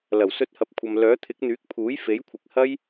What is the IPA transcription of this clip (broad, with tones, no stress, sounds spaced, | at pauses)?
l ɐ˨˩ w s ɵ˨˥ t̚ h ɐ˨ p̚ kʷʰ ɐ˨ m l œː˨˥ t̪ʰ ɪ˨˥ k̚ n̪ yː˨˥ k̚ pʰ uː˨˥ j f e˨˥ j kʷʰ ɪ˨˥ k̚ h ɐ˥ j